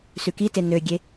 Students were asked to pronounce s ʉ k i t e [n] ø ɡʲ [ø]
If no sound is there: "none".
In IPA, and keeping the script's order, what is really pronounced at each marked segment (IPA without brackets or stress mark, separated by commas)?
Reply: n, e